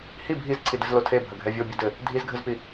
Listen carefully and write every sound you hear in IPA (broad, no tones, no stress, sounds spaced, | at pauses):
h i bʱ i z ǀʰ i d ɘ z l o tʰ e bʱ ɐ ɡʱ ɛ vʲ o bʲ ɐ d ɘ | dʱ i z ɡʱ ɘ z p i